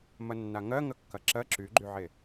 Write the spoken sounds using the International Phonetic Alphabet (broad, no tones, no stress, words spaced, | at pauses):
mɐnːaŋɜ ŋəkːɐǁɜ ǁyɡ͡ǃyʕe